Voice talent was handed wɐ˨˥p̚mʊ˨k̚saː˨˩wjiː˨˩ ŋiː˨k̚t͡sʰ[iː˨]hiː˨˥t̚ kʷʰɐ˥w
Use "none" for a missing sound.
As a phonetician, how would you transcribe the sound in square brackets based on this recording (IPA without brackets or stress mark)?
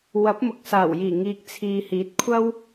iː˨